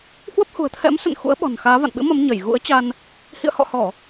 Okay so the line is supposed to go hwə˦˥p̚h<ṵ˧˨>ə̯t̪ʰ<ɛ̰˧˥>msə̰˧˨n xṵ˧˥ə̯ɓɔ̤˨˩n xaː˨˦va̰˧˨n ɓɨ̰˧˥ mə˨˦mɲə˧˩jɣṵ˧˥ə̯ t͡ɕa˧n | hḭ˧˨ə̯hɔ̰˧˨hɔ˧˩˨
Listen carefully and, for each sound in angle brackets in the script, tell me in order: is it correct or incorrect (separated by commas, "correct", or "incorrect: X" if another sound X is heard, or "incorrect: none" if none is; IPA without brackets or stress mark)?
incorrect: ṳ˨˩, correct